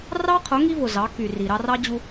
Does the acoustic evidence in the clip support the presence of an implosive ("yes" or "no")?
no